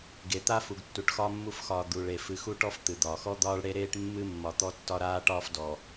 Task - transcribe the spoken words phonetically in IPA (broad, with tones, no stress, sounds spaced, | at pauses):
ɡ e˨ t̪ a˦ f u˨ ɡ tː u˨ ʈ x ɒː˦ mː u˦ f x ɒː˨ d̪ u˨ ɭ e˨ f ɨ˨ x u˦ ʈ ɔ˦ f t̪ ɨ˨ d̪ ɒː˨ x ɔ˦ d̪ ɒː˦ ɭ ɽ e˦ ɾ eː˦ ʈ mː ɨ˦ mː ɒ˨ t̪ ɔ˦ tː ɒ˦ ɾ aː˦ ʈ ɒː˦ f d ɔ˨